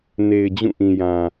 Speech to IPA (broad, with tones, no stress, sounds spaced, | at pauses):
n e˨ ɪ̯ d͡ʑ ũ˦˨ ʔ ĩ˨ j ã˨